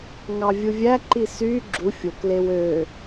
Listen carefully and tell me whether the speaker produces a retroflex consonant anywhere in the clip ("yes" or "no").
no